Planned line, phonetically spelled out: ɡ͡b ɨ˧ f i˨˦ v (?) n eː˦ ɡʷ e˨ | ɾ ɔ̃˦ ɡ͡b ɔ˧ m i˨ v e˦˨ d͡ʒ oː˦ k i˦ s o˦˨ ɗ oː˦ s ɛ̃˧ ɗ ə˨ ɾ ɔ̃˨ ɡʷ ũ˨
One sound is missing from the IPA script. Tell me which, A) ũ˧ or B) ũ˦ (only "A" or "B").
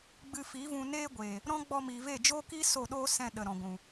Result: A